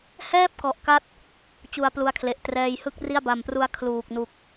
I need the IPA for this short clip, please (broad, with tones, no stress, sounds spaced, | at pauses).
h ɛː˥˩ p̚ k ɔ˨˩ ʔ k a˦˥ t̚ | t͡ɕ u˧ a̯ p l u˦˥ a̯ kʰ l e˨˩ ʔ t r ɛː˧ j h ɯ˥˩ k̚ r i˥˩ a̯ b a˨˩ m p r u˦˥ a̯ kʰ l uː˨˩ k̚ n u˨˩ k̚